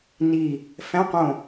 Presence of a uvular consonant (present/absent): present